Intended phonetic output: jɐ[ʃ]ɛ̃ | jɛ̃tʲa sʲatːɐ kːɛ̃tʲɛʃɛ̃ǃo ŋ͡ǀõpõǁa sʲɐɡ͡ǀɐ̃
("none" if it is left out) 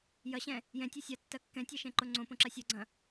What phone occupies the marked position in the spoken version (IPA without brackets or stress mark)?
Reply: ɕ